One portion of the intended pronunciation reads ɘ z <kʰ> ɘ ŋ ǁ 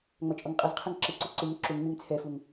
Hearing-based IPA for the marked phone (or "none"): qʰ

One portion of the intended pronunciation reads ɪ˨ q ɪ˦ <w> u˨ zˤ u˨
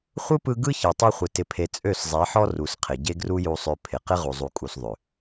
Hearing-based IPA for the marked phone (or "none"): ʁ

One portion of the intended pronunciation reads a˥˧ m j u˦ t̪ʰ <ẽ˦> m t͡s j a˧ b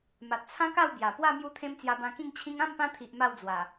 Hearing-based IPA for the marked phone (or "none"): ẽ˦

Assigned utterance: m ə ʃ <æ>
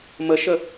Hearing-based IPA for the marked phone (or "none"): ə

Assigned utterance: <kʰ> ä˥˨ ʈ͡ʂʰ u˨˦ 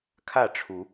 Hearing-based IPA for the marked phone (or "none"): kʰ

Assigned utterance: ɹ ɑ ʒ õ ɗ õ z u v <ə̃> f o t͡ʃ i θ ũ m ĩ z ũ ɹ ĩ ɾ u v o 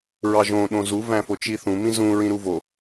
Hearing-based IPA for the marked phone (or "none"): æ̃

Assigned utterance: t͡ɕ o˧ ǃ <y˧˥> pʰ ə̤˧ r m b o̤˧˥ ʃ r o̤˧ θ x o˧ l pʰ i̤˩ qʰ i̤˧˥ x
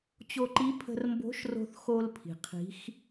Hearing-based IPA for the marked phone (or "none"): i˧˥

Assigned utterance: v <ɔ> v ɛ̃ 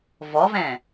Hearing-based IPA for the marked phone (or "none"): ɔ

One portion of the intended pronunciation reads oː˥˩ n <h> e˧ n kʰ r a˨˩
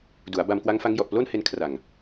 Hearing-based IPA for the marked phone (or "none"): h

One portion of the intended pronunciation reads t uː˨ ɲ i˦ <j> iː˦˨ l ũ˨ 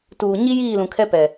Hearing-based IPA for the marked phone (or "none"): j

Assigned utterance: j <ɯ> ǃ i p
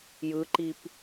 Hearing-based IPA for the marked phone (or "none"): ɯ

